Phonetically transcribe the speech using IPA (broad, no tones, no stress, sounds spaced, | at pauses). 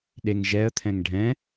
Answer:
ɗ e ŋ ʒ ɛ ə̯ t̪ʰ ɛ̃ ŋ ɖʱ ɛ̃